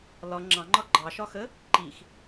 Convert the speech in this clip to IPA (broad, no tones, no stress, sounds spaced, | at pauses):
l ɒ ŋ͡ǁ ɑ̃ ŋ͡ǃ ɒ ɡ͡ǃ ɑ ʃ ɒ x ə | ǃ i x